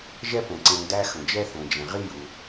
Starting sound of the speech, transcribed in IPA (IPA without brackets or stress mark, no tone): ʒ